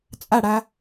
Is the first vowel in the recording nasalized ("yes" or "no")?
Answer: no